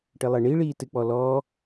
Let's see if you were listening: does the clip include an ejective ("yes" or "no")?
no